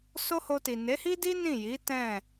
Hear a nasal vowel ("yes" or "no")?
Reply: yes